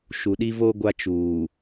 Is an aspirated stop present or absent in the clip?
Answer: absent